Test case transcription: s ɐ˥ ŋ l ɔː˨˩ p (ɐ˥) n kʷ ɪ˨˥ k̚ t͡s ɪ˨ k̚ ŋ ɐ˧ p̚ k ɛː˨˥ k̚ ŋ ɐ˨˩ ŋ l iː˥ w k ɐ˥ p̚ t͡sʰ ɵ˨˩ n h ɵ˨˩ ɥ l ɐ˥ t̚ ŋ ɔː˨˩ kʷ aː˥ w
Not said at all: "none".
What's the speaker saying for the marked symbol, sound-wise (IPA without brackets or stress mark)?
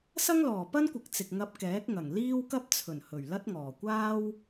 ɐ˥